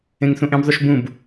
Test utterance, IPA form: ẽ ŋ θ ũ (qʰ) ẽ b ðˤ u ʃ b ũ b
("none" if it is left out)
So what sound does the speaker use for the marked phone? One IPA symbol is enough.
ʔ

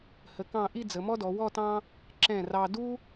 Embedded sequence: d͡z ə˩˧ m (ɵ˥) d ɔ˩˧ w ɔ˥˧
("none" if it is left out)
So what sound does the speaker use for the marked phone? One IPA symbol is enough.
ɔ˥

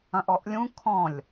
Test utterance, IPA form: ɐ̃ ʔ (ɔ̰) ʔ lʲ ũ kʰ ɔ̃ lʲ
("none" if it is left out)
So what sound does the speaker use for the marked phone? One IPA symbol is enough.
ɔ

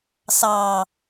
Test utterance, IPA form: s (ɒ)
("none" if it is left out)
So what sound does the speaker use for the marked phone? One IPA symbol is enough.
ɑ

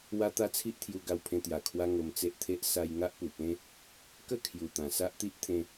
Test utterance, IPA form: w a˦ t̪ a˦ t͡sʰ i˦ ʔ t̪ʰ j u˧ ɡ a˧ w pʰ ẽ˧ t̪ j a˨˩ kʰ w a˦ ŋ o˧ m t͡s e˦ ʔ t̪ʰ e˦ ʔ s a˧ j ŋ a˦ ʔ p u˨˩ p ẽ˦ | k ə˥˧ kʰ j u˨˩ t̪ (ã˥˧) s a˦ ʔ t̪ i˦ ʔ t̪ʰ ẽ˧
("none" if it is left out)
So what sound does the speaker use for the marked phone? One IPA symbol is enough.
ã˨˩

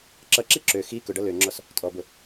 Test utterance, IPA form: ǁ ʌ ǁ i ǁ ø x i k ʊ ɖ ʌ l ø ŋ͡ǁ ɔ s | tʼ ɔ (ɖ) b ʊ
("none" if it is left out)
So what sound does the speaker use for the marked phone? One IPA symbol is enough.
none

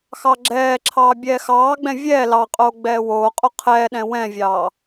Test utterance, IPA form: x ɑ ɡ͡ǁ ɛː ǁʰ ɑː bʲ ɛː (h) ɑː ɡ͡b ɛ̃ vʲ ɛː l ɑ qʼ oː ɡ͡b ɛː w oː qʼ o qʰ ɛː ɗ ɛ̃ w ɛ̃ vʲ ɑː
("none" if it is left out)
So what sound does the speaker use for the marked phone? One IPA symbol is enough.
x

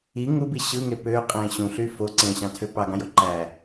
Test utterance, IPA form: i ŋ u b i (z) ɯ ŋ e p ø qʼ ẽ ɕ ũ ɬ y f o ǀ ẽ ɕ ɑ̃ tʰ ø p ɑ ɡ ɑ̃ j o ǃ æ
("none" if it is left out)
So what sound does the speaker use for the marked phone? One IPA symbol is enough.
ɕ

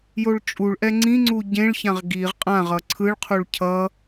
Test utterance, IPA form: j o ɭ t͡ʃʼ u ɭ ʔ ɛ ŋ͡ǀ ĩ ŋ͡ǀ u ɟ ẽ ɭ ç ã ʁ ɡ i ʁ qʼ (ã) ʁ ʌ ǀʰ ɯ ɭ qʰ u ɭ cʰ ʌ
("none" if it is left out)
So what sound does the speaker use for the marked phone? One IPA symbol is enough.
ã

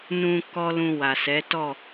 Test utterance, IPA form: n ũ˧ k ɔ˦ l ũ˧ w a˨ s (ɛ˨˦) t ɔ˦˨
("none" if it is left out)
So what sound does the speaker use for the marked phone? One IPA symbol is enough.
ɛ˨˦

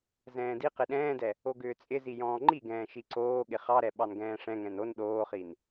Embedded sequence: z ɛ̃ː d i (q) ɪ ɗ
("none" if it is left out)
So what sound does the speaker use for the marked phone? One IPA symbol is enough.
q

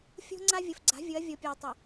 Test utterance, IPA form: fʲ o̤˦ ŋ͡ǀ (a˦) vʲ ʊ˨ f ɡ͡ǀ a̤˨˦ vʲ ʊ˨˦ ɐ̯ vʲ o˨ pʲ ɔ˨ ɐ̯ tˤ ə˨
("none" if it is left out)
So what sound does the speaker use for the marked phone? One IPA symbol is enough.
a˦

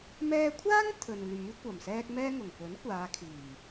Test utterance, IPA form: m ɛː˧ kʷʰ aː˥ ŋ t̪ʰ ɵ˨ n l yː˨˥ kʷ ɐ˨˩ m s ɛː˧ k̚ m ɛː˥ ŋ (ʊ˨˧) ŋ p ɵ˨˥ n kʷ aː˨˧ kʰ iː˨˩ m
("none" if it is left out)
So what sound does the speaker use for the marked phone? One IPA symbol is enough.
ʊ˨˩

